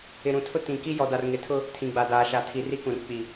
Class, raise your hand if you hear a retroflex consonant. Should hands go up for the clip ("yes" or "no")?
no